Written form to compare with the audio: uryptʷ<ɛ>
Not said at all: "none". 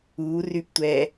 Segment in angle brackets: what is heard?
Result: ɛ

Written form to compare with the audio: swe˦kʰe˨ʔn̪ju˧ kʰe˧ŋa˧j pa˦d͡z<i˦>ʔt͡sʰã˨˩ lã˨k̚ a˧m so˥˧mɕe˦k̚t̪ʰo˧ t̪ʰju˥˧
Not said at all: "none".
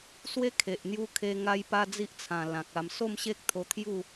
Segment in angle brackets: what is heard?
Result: i˦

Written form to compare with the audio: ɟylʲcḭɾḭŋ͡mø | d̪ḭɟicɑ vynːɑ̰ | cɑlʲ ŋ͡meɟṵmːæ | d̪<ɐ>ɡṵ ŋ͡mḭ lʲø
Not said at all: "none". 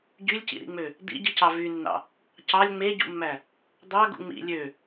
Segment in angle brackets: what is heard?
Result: ɑ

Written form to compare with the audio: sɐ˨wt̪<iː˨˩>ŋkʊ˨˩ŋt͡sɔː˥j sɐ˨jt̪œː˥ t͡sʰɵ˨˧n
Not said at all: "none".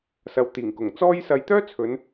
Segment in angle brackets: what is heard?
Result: iː˨˩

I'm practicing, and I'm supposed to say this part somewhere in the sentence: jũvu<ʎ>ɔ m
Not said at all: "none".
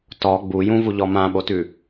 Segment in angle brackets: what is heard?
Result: ʎ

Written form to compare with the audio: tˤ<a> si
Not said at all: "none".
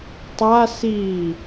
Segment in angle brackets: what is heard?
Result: a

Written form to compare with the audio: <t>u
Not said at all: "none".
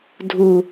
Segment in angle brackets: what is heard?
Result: dʱ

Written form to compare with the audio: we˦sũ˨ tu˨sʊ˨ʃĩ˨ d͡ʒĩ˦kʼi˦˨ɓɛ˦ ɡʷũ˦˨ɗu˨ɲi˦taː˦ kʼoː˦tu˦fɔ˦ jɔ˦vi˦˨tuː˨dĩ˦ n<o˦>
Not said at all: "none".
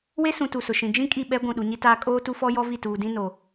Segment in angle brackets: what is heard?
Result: o˨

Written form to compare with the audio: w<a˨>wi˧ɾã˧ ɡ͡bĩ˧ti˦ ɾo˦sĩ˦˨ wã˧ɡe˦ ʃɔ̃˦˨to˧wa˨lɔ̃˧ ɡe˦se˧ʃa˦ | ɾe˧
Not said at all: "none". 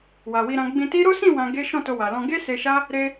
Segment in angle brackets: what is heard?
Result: a˨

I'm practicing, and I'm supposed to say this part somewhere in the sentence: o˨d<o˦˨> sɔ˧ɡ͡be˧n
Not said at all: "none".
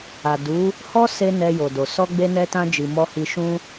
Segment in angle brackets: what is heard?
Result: o˨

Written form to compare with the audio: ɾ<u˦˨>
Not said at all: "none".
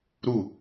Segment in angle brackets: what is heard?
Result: u˦˨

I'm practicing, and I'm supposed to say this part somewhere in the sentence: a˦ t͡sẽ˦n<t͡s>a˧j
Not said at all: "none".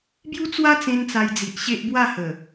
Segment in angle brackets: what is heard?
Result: t͡s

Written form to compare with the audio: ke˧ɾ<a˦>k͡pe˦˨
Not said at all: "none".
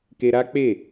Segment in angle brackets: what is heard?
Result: a˦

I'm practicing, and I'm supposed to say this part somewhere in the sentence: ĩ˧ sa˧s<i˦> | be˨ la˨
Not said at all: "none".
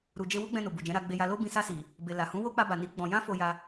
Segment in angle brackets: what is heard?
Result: i˨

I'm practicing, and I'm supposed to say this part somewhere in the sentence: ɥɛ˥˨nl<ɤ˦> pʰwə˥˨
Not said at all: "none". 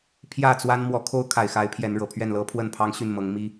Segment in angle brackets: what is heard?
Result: ɤ˦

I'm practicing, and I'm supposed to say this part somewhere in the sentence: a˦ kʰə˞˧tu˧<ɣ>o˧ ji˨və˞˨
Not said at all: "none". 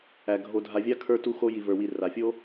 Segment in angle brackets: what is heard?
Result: x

